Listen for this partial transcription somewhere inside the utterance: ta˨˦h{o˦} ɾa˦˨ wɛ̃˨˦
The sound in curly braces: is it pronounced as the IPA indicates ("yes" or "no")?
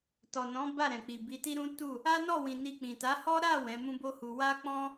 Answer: no